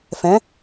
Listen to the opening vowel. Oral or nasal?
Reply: nasal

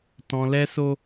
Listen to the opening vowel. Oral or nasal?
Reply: nasal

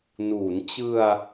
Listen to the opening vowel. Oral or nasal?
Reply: oral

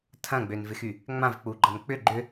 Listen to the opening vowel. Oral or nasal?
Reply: nasal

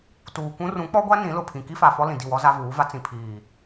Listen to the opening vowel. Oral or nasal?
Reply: oral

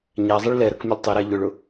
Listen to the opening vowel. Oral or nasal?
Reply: oral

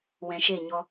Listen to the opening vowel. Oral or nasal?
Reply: nasal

